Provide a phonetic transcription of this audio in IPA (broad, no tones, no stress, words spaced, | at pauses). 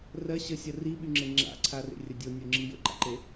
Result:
rɜ ɕəsʲɜ riɓyŋ͡ǁe ŋ͡ǁa̰ǀʰarḛrʲə dʲonʲoŋ͡ǁi jə̰ǃa̰ǃe